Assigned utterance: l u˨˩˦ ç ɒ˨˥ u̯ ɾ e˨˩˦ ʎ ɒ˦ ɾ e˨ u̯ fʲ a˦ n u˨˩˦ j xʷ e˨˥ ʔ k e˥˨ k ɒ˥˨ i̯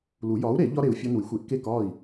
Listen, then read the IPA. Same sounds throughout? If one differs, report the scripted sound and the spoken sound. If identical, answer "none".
ç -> j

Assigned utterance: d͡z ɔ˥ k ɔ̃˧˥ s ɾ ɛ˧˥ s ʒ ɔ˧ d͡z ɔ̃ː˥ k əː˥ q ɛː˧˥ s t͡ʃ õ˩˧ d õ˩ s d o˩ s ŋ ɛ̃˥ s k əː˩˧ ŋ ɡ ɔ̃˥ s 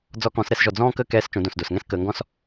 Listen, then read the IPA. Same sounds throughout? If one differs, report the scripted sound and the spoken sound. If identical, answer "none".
q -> k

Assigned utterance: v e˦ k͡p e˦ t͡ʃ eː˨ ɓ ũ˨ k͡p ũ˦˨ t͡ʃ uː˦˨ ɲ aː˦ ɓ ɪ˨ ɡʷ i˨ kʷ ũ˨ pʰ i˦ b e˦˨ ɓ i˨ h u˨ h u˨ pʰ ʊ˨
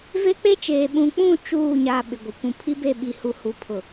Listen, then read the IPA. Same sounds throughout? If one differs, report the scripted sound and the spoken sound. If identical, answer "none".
none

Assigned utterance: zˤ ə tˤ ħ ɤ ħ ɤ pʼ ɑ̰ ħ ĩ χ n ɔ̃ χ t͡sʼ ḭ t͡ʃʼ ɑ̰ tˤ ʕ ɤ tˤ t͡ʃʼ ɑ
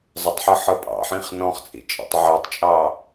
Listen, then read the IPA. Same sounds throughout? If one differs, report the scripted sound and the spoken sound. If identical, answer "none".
none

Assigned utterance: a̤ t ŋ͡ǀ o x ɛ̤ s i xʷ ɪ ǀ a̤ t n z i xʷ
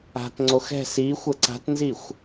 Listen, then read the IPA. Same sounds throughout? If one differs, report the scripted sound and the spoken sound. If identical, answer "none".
ɪ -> ə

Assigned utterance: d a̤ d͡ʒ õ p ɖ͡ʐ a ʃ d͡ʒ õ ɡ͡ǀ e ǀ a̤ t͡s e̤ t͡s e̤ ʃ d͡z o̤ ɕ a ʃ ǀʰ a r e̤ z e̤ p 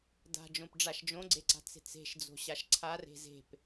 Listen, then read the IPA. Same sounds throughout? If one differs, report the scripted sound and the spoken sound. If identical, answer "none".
none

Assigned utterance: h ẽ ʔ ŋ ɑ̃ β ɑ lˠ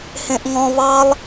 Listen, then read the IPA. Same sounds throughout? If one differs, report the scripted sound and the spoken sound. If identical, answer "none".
ɑ̃ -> ɔ̃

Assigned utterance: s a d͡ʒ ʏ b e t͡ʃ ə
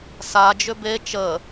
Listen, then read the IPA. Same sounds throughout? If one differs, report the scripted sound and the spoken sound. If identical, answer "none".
none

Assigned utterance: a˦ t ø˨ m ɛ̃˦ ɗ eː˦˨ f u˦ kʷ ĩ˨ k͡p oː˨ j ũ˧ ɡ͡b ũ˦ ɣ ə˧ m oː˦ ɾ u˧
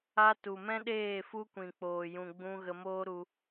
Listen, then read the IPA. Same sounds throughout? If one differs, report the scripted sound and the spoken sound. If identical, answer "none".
ø˨ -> u˨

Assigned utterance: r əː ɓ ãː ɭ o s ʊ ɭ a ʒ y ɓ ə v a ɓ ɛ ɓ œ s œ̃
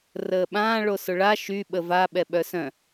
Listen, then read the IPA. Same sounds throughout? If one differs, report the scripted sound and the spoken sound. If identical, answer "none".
ʒ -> ʃ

